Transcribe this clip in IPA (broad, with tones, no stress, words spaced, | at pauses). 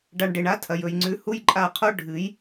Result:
ɖa˨ɳ ɖe˨ɳa˦tʰɐ˨jɵ˨j ŋ͡ǀʉ˨ hu˦jǃʼa˦˨qʰo˦ ɖʱɨ˨˦j